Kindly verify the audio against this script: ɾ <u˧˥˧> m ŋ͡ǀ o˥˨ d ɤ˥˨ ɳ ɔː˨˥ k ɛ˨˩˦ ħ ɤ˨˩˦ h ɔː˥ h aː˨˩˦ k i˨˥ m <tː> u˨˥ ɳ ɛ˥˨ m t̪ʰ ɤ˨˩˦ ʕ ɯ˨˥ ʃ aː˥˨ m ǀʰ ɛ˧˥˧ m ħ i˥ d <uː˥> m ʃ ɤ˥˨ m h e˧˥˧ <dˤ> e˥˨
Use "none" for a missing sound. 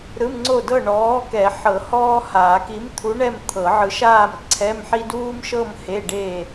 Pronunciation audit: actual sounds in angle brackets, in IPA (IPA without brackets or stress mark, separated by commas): ɯ˧˥˧, t̪ʰ, uː˥, ɖ